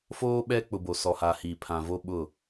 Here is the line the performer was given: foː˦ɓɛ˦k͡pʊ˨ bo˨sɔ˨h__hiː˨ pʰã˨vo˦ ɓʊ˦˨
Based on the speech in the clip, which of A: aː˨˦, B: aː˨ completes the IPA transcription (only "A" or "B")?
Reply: B